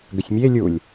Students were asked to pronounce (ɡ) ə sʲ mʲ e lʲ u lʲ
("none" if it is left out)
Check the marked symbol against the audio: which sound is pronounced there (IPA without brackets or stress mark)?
ɡ